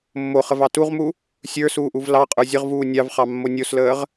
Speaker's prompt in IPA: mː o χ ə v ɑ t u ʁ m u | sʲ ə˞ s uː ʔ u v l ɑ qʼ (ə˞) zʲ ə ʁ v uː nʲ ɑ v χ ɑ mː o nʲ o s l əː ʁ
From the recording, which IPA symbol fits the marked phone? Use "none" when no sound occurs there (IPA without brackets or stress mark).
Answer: ə˞